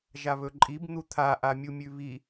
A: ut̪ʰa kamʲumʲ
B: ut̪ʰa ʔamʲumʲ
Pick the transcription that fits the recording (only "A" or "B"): B